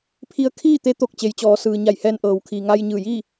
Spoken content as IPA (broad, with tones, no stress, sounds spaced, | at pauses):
pʰ i˧ ə̯ kʰ iː˥˨ t̪ e˧˥ t̪ o˧˩ k̚ t͡ɕ e˩ j t͡ɕ ɔː˩˧ s ɯː˩ ɲ a˧˩ j h ɛː˧ n ʔ ɤː˩ w kʰ iː˩ ŋ a˧ j ɲ ɯː˧˩ j iː˥˨